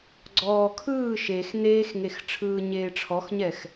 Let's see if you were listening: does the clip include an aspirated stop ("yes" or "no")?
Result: yes